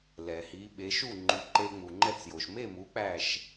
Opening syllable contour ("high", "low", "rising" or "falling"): low